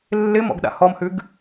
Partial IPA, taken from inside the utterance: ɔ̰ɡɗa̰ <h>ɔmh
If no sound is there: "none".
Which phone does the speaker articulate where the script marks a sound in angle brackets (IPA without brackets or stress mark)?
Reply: h